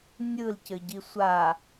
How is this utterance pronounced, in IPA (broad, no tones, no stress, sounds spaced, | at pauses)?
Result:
nʲ ɯ l c ɘ ɟ i sʷ a